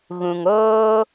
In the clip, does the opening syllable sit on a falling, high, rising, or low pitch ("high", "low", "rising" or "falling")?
low